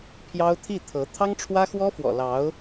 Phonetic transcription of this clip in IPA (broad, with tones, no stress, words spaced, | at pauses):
pʰjɑ˥ʊ̯ t̪ʰi˥˩t̪ʰɤ˧˥ t̪ʰɑ˥ŋʈ͡ʂʰwä˥xwɔ˥fwɔ̰˨˩ lɑ˧˥ʊ̯